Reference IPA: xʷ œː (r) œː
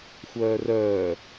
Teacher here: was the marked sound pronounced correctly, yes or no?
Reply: yes